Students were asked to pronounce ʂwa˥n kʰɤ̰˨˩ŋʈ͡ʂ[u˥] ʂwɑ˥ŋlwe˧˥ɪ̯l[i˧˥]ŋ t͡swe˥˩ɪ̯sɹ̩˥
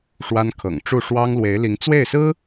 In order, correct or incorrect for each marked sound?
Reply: incorrect, correct

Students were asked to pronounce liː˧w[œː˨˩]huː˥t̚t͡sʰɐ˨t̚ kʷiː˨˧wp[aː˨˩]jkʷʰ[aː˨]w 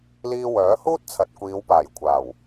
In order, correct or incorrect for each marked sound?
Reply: incorrect, correct, incorrect

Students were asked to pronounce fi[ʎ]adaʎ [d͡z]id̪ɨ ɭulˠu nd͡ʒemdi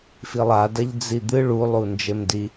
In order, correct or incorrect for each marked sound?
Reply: incorrect, correct

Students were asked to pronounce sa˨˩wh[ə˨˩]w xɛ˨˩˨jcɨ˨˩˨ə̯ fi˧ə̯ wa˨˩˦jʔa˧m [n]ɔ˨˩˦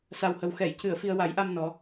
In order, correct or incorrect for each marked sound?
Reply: correct, correct

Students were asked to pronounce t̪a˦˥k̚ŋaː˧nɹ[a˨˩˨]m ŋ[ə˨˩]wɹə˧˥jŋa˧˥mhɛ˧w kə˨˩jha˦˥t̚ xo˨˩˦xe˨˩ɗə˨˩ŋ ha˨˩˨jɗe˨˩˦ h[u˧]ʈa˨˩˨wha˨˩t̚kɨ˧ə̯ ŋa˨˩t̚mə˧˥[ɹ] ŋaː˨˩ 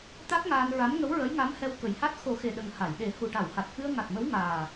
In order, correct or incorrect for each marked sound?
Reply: incorrect, incorrect, incorrect, incorrect

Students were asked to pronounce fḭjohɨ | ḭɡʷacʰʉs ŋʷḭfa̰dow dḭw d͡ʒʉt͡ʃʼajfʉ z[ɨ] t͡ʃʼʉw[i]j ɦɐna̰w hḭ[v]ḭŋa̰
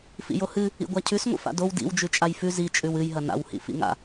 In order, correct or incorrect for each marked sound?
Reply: incorrect, incorrect, incorrect

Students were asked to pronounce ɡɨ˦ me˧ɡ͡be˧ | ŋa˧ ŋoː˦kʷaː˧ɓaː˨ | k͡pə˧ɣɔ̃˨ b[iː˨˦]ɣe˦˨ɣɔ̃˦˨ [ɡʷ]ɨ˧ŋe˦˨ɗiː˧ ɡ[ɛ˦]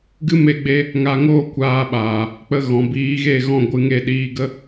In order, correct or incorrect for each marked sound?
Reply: correct, correct, incorrect

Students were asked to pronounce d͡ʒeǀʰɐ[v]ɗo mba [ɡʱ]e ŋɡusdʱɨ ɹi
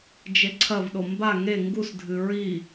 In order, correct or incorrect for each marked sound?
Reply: correct, incorrect

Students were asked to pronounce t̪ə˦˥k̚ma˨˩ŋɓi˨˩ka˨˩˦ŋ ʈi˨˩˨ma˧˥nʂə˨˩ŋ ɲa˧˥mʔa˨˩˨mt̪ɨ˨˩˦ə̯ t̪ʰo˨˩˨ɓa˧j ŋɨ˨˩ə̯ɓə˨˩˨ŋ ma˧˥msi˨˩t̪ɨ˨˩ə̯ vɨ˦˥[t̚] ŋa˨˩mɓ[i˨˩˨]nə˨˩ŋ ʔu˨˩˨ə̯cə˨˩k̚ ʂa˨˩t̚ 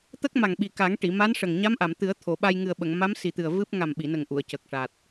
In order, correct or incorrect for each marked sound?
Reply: incorrect, correct

